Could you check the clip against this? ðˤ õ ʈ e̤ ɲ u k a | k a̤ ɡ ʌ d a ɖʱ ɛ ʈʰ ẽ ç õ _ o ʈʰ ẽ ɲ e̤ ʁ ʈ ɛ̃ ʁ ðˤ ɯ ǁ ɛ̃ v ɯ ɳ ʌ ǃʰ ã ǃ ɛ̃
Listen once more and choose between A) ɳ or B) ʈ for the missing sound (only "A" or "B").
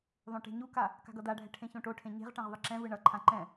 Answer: B